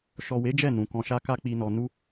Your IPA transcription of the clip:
ʃ ɔ˨ w e˨˦ d͡ʒ ɛ˦˨ n ũ˨ k ɔ̃˨ ʃ a˧ k a˦ k͡p i˧ n ɔ˧ n u˦

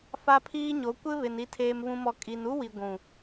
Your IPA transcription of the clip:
f a˦ pʰ iː˦ ɲ o˨˦ kʷ ɪ˦ β ɪ˨ n i˨ tʰ eː˨ m β ũ˨ m ɔ˨ kʼ i˨ n u˦ w i˨ ɡʷ ũ˨

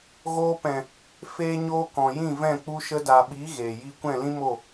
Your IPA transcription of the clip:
ɣ oː˧ p ɛ̃˨ | f eː˦ ɲ oː˦ k ɔ̃˨ j ĩ˦˨ v ɛ̃˦˨ k͡p u˧ ʃ ə˧ d a˨ ɓ i˨˦ ɣ eː˨ j i˦ kʷ ɛ̃˦˨ l ĩ˦ m o˦˨

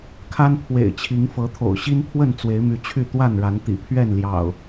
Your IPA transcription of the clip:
kʰ a˦ n pʰ w ḛ˨˩ ɪ̯ t͡ɕʰ i˨˦ ŋ f ɤ˨˦ t̪ʰ o̰˨˩ ʊ̯ ɕ i˦ n pʰ w ə˥˨ n t͡s w e˨˦ ɪ̯ m y˨˦ t͡ɕʰ y˥˨ t̪ w a˥˨ n ɻ a˨˦ n t̪ ḭ˨˩ pʰ ɥ ɛ˥˨ n l j ɑ̰˨˩ ʊ̯

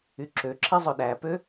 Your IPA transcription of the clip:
y ǁ ø ǁ i zˤ ɵ ɗ æ p ø

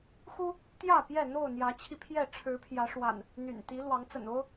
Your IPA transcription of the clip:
x u˦ | t̪ j ä˥˨ p j ɛ˥˨ n̪ o˥˨ ʊ̯ n̪ j ä˨˦ t͡ɕʰ i˧ pʰ j ɛ˥˨ ʈ͡ʂʰ ɻ̩˨˦ pʰ j ä˨˦ ʂ w a̰˨˩ n | n̪ y̰˨˩ n t̪ i˨˦ l w ɑ˨˦ ŋ t͡s ə̰˨˩ n o˦ ʊ̯

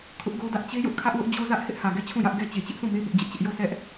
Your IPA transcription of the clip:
kʰ ʊ˦ ʔ ɡ o˦ d ä˦ ʔ t͡ɕ e˦ j ʊ˦ ʔ kʰ ä˦ ʔ w ʊ˦ ʔ d͡ʑ o˦ z ä˦ ʔ h ɪ˦ ʔ h ä˨ ɡ ɛ˦˨ t͡ɕʰ ũ˦˨ j ä˦ ʔ ɡ ɛ˦ t͡ɕ e˨ t͡ɕ ɪ˦ ʔ sʰ ũ˦˨ m e˦ b ʊ˦ ʔ d͡ʑ ɪ˦ ʔ t͡ɕ ɪ˦ ʔ j o˦˨ s ɛ˦ ʔ

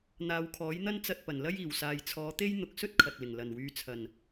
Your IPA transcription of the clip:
n̪ aː˨˧ w kʰ ɔː˨˥ j n̪ ɐ˥ n t͡s ɐ˧ t̚ p ɐ˨˩ n l ɐ˥ j iː˨˩ w s aː˨ j t͡sʰ ɔː˨˧ t̪ e˥ j n̪ ʊ˨ k̚ s ɵ˥ t̚ kʰ ɐ˨ t̚ l ɪ˨˩ ŋ l ɐ˨˩ n w yː˨˧ t͡sʰ ɐ˨˩ n

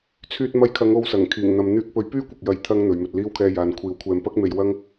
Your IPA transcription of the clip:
t͡sʰ yː˧ t̚ m ɐ˧ j kʰ ɐ˨˧ ŋ o˨˧ w s ɐ˨˩ ŋ kʰ iː˨˩ ŋ n̪ ɐ˨ m n̪ yː˧ k̚ p ɵ˨˥ ɥ p yː˥ kʷ ɐ˨ k̚ j ɐ˨˧ j t̪ʰ ɐ˧ ŋ n̪ ɵ˨˧ ɥ m ɵ˧ t̚ l iː˥ w kʰ ɛː˧ j aː˨ n kʷʰ iː˨˥ w kʷʰ ɛː˧ m p ɐ˥ k̚ m e˧ j w ɐ˥ ŋ

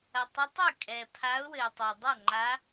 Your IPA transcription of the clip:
ɐ˩ tˤ ɐ˨˦ tˤ ɘ˥˩ kʼ ɛ˩ pʰ a˨˦ ʊ̯ w ɘ˩ ɪ̯ tˤ e˩ dˤ ɐ˥˩ ŋ͡ǃ a˨˦

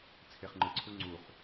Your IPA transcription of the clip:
t͡sʰ e χ ŋ͡ǃ ɯ ǀʰ u ŋ͡ǀ u χ

